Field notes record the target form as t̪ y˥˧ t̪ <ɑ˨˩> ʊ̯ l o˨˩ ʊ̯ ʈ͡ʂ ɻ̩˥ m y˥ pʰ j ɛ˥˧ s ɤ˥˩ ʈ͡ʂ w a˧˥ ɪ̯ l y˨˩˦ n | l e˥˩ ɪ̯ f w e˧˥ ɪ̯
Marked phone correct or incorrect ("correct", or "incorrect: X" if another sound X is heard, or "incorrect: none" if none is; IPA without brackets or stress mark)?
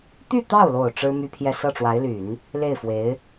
incorrect: ɑ˥˩